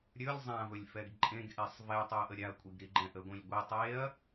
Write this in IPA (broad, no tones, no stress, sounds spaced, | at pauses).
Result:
ɾʲ ɵ lʲ zˤ ã v ɵ lʲ f ɛ ɡ ǃʼ ẽ ɡ ʔ e sˤ v ɛ tˤ u ɐ̯ ʔ ə ɾʲ a ɐ̯ kʷʼ i ɡ ɾ i ɡ͡ǃ ɛ̃ ʔ ə ɡʷ ĩ lʲ ɡʷ i tˤ e ɐ̯